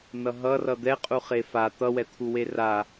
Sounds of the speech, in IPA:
nʌɦʌ rʌd̪ɛqʼu χefa t̪ʌwɛt̪ʰuwe ra

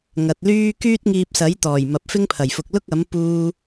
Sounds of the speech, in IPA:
ŋɐ˨t̚lyː˥ kyː˥t̚ŋiː˧p̚sɐ˨˥jt̪ɔː˨˩j mɐ˨p̚fɪ˥ŋpʰɐ˨˩jfʊ˨k̚ lʊ˥k̚ɐ˨˥m puː˥

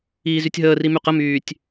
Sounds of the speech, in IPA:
iːzytʲɦəːri myqəmyːtʲ

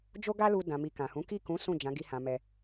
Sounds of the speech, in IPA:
d͡ʒo˦ɡa˦lu˧ dã˨mi˨ kã˨hũ˨˦ ki˦˨kũ˨˦ sũ˦˨d͡ʒã˨˦ ɡi˧hã˨mɛ˧

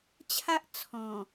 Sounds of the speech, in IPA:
t͡ɕʰa˦ʔ t͡sʰɔ̃˨˩

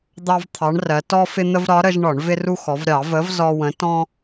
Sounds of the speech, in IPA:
d̪ɑ˦v t̪ʰɑ˨˥ɳrɜ˩˧ tɔ˦fɪ˦n̪ə˦v ɾɒ˨˥ɾə˦ʒ ɳɒ˧˩˧ɳvɪ˦ru˦xɔ˩˧v ɾʲɑ˧˩˧ və˨˥v zɔ˦wə̃˨˥ tɔ̃˦

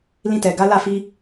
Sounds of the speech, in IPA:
lĩ˧tɛ˨ ɡa˨˦la˦˨ fi˧

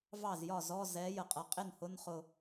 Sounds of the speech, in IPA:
vɑ˥˩zjɒ˥˩zɔ˧˥˧ zɛ˨˥ jə˩qʼʌ˨˩˦qʼɪ˥˩nhʊ˧˥˧n χʊ˧˩

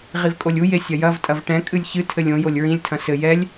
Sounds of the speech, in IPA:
ʁivkʼolʲu jesʲɐjɐv tʼɐvʈɛ̃ kʼɨlʲçɨ tʰɘlʲõ jolʲɹĩlʲ tʰɐ̃sɘ jɛlʲ

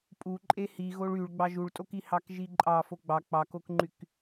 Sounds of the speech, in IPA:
pʼuǃʼe hi ɣoɭyɭ ɡ͡bɑʒuɭtʼoki hɑkʒiǃʼɑ foɡ͡bɑ k͡pɑkokŋ͡ǃyk

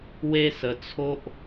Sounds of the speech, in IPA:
we˦sə˧t͡sʰo˦ʔ

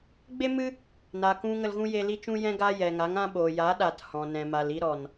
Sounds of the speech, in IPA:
ɡ͡be˦mɨ˦ | na˨kũ˧ ŋə˧lɣũ˦je˧ li˦t͡ʃũ˦jɛ̃˦ɡaː˦ jɛ˨ŋa˨˦ŋã˦ɓoː˨ jaː˨˦ɗaː˨t hɔ̃˨nɛ̃˨ma˨l i˧ɾɔ˨n

